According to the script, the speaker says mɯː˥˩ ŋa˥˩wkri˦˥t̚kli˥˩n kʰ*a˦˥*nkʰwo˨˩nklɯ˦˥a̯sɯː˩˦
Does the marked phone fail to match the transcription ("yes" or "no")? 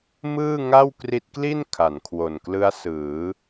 yes